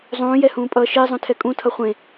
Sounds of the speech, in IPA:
zˤ ũː j ɛ h ũː pʼ ʌː ʃ e zˤ ũ tʰ ɛ kʼ ũ tʰ ʌ χʷ ẽ

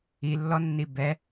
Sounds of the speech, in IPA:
i lː ɔ nː i b ɛ

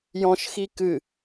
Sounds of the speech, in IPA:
j ɔ̃ ʃ x i k ɨ

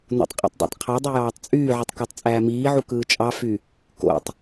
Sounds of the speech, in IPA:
n o̰ tˤ qʼ ḛ tˤ dˤ o̰ tˤ qʰ ɑ dˤ y j ɑː tˤ t͡sʼ yː ʕ ɯ tˤ k ɑ tˤ t͡sʼ æː m iː ʕ u k ɯː t͡ʃʼ ɑ f y | k o̰ tˤ

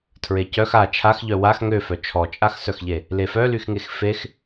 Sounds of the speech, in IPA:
tʰ ɹ e c œ x a t͡ʃʰ a x ʎ œ w a x ŋ ø f œ t͡ʃʰ ɔ t͡ʃʼ a x s œ x ʎ e | l e f œ l y x ŋ e x f e x

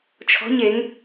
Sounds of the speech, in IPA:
t͡ʃʰ ɔ̤ ɲ e ŋ

